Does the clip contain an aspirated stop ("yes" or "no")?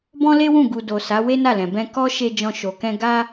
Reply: no